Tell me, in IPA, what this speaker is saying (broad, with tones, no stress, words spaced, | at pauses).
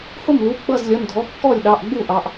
hʊ˥˩mlu˩˧˩ ɡ͡bʌ˥˩zlʲʌ˩˧˩n dʱɔ˩˧˩kːɔ˥˩lʲɗɑ˩˧˩ʔɡ͡bu˥˩ ʔɑ˩˧˩ʔ